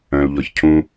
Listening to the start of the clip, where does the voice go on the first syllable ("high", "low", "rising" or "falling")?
low